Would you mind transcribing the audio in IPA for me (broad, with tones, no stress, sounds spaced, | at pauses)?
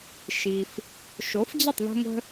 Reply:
ʃ i˩ f | ʃ o˩˥ f d͡ʑ ə˥˩ tˤ ð ə̤˥ ŋʷ ə̤˥